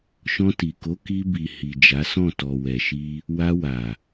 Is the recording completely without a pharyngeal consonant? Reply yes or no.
yes